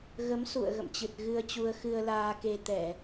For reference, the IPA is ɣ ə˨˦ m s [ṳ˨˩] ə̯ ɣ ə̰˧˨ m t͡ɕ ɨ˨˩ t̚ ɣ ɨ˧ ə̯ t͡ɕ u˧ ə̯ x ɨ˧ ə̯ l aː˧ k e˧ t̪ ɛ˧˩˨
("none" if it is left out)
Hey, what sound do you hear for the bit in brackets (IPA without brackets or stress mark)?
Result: ṵ˧˨